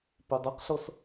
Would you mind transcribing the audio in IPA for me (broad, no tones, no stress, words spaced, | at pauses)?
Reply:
pidˤeqɬɤs